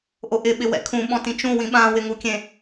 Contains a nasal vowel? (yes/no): yes